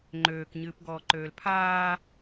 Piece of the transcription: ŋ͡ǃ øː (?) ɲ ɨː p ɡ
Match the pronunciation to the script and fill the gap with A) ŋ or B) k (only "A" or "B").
B